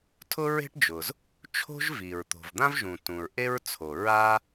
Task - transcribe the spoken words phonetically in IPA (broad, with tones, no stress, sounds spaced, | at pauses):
tʰ ʊ˥ ɹ e̤˥ ʈ d͡ʒ ʊ˩ z | t͡ʃʰ o̤˥ ʒ v i˩ ɹ t̪ o̤˩ v d̪ ã˥ v ʒ ũ˩ t ũ˩ ɹ ʔ e˥ ɹ t͡sʰ o˩ ɹ a˥